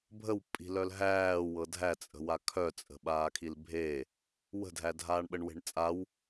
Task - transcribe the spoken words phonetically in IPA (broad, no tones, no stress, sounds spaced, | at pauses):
bʱ ə w pʼ i̤ l œ l ɦ æː w ɤ dʱ æ t͡sʼ ə̤ w a kʰ œ t͡sʼ ə̤ ɓ aː kʰ i l bʱ e | w ə̤ dʱ æ dʱ aː ɳ ɓ ə ɳ w e̤ ɳ t͡sʼ a w